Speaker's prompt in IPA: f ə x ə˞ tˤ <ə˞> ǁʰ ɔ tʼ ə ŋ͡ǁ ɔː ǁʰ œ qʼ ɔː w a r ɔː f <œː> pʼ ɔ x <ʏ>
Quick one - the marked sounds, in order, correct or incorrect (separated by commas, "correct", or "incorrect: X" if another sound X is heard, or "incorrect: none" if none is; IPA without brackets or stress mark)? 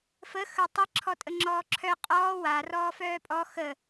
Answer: incorrect: ə, correct, incorrect: ə